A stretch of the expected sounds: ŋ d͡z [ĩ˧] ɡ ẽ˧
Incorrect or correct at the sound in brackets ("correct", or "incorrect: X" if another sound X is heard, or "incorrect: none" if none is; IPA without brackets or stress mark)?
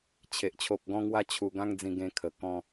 correct